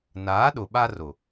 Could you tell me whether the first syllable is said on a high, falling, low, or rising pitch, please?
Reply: rising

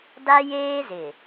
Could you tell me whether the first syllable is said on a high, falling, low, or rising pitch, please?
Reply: high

